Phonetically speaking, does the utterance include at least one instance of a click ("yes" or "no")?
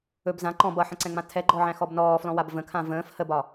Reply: yes